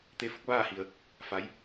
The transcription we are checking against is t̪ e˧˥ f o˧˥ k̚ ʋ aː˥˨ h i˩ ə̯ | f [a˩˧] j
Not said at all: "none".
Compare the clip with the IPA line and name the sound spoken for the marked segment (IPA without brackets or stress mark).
a˩˧